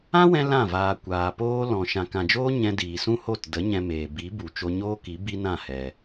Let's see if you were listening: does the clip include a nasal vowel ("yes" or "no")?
yes